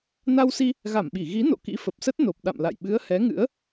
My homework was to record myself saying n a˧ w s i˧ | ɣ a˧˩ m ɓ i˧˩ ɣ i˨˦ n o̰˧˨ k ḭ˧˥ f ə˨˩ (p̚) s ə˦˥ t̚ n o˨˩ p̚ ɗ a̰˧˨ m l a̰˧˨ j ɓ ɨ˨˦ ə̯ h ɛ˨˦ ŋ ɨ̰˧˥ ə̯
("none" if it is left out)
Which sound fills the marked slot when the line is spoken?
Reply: p̚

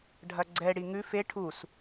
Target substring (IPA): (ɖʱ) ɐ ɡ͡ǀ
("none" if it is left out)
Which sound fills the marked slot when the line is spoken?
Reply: ɖʱ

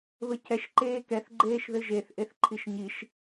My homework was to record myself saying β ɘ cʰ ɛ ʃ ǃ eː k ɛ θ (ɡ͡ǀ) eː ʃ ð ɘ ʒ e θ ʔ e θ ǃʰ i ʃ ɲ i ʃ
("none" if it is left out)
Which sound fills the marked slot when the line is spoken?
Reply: ɡ͡ǃ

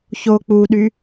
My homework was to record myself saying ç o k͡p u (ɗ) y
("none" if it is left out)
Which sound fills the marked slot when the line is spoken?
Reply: ɗ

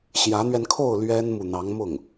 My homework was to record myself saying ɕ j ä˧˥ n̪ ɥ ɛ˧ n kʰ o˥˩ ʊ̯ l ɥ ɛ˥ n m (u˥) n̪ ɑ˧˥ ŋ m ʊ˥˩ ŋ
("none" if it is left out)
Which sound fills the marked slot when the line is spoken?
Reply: u˨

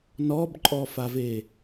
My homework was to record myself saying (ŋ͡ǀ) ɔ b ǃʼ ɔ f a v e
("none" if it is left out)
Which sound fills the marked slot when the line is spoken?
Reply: n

